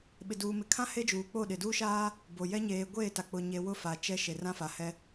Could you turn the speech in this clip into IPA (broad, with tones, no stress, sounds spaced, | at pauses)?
ɓ ɪ˨ d uː˨ m ɪ˨ kʰ ã˦ h e˦ d͡ʒ uː˨ k͡p o˦˨ ɗ ɪ˨ d uː˦ ʃ aː˦ | b o˨ j ɛ˦ ɲ eː˨ ɡʷ eː˦˨ t a˨ k͡p ʊ˨ ɲ e˨ w ʊ˦ f a˨ t͡ʃ ɛ˦ ʃ e˨ r ã˦ f a˨ h ɛ˦